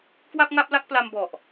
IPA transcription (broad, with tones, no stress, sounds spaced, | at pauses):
k w a˥˩ p̚ ŋ a˥˩ p̚ l a˥˩ k̚ p l a˧ m b ɔ˨˩ ʔ